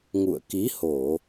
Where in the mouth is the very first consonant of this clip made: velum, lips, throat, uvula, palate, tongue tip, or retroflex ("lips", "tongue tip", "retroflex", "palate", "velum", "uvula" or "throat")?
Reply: velum